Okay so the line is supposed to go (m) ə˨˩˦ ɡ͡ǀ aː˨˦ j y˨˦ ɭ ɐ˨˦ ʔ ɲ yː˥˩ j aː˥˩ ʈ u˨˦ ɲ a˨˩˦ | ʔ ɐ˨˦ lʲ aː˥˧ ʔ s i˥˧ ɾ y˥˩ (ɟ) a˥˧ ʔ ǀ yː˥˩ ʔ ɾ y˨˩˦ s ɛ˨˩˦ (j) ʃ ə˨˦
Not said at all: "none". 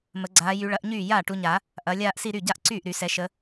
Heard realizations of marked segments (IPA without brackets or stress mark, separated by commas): m, ɟ, none